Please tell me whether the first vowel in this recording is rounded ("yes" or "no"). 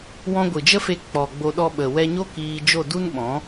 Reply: yes